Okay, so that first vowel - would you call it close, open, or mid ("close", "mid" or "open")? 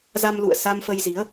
open